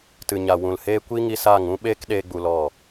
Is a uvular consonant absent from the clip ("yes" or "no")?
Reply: yes